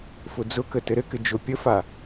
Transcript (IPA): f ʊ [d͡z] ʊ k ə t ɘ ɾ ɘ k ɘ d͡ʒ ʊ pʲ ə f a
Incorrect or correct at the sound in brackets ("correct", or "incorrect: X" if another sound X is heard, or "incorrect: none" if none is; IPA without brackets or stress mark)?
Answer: correct